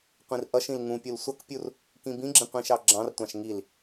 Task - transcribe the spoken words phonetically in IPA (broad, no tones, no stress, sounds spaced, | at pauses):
qʷ ĩ r ʔ ʌ ʃ ĩ l ŋ ũ pʲ u l sʷ ʌ k pʲ u r | k ĩ b ĩ ɡ͡ǁ ĩ qʷ ĩ ʃ ɑ ɡ͡ǁ ɑ̃ r tʷ ɑ̃ ʃ ŋ i l